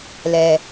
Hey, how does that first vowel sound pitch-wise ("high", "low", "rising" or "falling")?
low